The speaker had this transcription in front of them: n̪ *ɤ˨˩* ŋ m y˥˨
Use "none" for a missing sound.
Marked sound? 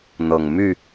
ɤ˨˩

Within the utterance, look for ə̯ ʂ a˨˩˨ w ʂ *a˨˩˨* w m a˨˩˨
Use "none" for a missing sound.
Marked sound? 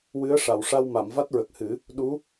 a˧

